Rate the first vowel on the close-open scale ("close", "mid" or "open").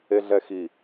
mid